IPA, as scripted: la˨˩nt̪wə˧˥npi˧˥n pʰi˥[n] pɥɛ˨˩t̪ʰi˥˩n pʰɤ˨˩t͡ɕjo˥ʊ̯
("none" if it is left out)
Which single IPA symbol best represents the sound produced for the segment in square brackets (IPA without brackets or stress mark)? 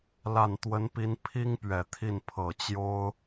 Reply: ŋ